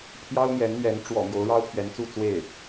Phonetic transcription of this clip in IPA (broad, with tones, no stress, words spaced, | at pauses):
pʰjɑ˥ʊ̯n̪jɛ˧˥nn̪ɥɛ˧˥n ʈ͡ʂwɔ̰˨˩ mjo˧˥ʊ̯ɻɑ˥ʊ̯pʰɥɛ˧˥nt͡su˥˧ t͡swe˥˩ɪ̯